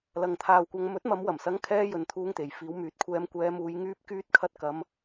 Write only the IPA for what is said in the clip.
l ɐ˨ ŋ t̪ʰ aː˨ w kʷ ɐ˨˧ ŋ m ɵ˨˥ t̚ m ɐ˨˧ m w ɐ˨˩ m s ɐ˨˥ ŋ kʰ ɛː˧ j ɵ˨ n t̪ʰ uː˧ ŋ t̪ e˨ j f iː˨˧ w m yː˨˥ t̚ kʷʰ ɛː˧ m kʷ ɛː˧ m uː˧ j ŋ yː˧ p̚ k yː˧ t̚ kʰ ɐ˧ t̚ k ɐ˧ m

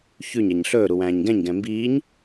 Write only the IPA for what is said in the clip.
ç ʉ ɲ ɛ ɲ ɬ ɵː ɾ u w æ̃ː ɲ ɡ ɛ̃ ɲ ɡ ɛ̃ m b iː ɲ

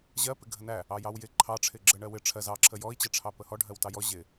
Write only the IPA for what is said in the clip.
ʑ ɜ p ɪ ɡʱ ə n æ | ɑ j ɑ w j ɪ ǃʰ ɑ ʈ͡ʂʰ ɪ ɡ͡ǁ ə ɳ ɜ w ɪ ʈ͡ʂʰ ɜ z ɑ ǁʰ ə j ɔ i̯ t͡ɕ ɜ ʈ͡ʂʰ ɑ p ə h ɔ ɖʱ ɜ w t ɑ j ɔ ʑ ɪ

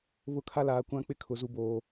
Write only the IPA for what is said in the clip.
β ʊ˦˨ kʰ a˦ l aː˨ kʷ ã˦ k͡p ɪ˦ kʰ ʊ˨ z u˨ b oː˨

